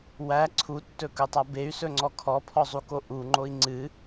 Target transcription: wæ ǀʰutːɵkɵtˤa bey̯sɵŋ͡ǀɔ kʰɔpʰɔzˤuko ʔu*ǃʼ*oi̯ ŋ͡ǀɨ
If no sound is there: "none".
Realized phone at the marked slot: ŋ͡ǃ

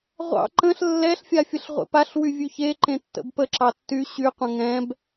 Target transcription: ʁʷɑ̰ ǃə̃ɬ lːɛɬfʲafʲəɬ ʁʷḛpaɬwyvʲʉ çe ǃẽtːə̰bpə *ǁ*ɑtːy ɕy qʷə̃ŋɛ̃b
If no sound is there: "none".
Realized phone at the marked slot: ǁ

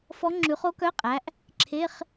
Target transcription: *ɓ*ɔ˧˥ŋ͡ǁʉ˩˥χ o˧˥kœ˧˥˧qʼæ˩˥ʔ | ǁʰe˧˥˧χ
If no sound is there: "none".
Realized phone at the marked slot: f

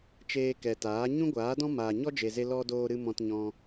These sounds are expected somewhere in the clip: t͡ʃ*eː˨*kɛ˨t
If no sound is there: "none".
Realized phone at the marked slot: eː˧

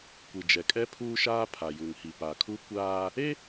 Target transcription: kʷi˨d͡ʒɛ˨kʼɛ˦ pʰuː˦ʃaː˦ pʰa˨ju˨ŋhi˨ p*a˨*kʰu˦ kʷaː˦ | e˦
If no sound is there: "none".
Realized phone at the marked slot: a˨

